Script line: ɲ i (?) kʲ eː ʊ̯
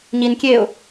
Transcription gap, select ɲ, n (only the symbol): n